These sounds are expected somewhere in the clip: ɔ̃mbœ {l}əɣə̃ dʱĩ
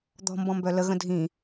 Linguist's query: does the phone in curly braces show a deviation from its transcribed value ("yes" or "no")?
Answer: no